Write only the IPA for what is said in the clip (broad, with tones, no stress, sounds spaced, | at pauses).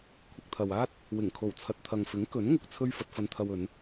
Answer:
kʷʰ ɪ˧ k̚ t̪ʰ ɐ˨ w aː˥ t̚ | w ɪ˨˩ ŋ kʰ o˨˩ w t͡sʰ ɐ˨ t̚ t̪ʰ ɐ˨ ŋ f ɪ˨˥ ŋ k ɵ˨˥ n ŋ ʊ˧ k̚ t͡sʰ ɵ˥ ɥ f ɐ˧ t̚ f ɐ˧ n t̪ʰ ɐ˧ w ɵ˨˧ n